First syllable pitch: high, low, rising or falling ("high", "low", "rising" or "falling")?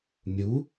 rising